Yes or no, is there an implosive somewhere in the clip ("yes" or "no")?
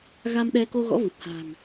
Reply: yes